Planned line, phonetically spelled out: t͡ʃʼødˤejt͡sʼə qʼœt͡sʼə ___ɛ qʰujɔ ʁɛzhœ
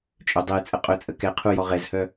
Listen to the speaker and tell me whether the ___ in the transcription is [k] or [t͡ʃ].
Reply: k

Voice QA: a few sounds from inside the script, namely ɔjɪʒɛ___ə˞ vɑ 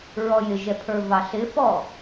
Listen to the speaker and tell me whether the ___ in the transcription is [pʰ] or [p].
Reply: pʰ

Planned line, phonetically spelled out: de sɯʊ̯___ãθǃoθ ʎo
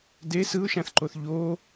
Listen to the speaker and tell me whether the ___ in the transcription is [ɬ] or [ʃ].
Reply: ʃ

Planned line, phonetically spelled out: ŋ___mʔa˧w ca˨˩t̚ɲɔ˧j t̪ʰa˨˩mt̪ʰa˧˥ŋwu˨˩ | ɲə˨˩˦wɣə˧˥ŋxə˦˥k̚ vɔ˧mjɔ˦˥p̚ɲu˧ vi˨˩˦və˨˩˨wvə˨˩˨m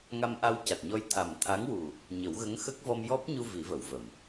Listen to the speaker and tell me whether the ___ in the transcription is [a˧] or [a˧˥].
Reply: a˧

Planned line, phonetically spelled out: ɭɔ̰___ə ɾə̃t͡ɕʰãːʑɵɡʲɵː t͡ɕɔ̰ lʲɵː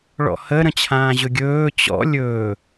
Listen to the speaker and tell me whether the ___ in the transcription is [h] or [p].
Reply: h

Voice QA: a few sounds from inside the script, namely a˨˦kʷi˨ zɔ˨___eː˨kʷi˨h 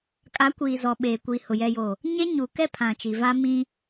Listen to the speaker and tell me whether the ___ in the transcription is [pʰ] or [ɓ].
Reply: ɓ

